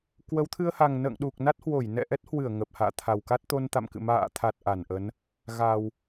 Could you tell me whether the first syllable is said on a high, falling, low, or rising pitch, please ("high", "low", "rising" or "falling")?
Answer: rising